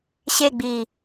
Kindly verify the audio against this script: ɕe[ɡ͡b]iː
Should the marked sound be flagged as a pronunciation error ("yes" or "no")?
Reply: no